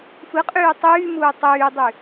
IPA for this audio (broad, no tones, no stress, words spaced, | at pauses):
fɯqʼyː tˤyːmuː tˤyːdˤy